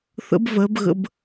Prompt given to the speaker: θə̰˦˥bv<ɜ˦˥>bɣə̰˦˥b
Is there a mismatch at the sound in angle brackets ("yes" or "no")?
no